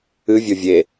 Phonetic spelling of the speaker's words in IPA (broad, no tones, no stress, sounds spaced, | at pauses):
ɨ vʲ o vʲ e